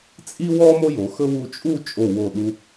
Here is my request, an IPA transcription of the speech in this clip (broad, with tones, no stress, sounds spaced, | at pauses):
t͡sʼ i˥ w ɔ˥ m o˥ j o˩˧ x ɵ˥ w u˧ t͡ʃʼ u˥˧ t͡ʃʼ o˧˩ w o˧˩ ɗ u˧